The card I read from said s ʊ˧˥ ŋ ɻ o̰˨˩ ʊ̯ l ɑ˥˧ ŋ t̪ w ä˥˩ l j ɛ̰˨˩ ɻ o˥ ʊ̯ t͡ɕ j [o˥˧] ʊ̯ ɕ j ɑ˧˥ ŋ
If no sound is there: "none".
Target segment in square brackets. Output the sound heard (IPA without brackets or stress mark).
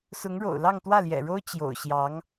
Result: o̰˨˩